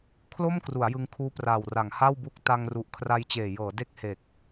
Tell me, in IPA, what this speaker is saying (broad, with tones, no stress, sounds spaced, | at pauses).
kʰ l o˥˩ m k r u˩˦ a̯ j ɯ˧ ŋ kʰ uː˦˥ p r aː˨˩ w r a˩˦ ŋ h a˥˩ w b u˦˥ k̚ t a˧ ŋ r u˨˩ ʔ kʰ r a˧ j t͡ɕ eː˨˩ j ɤː˩˦ d e˦˥ k̚ h e˨˩ k̚